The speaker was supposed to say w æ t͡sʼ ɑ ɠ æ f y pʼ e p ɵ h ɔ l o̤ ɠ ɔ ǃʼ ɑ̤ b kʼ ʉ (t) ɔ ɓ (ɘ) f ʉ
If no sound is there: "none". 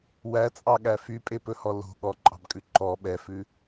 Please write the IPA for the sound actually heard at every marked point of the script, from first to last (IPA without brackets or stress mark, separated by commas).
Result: ǃ, ɛ